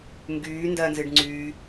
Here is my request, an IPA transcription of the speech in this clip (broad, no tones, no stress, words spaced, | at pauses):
ŋɡyː ndɜnzɨɖŋ͡ǀyː